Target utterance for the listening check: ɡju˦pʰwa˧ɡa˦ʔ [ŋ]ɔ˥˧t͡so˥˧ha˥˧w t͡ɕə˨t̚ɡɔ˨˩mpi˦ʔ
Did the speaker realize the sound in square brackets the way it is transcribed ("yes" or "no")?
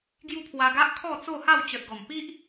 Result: no